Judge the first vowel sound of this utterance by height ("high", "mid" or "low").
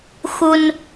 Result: high